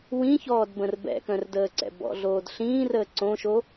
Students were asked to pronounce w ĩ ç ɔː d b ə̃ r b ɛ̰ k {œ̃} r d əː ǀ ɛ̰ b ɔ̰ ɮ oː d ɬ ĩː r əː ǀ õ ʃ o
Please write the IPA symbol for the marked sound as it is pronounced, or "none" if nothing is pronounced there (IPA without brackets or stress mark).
œ̃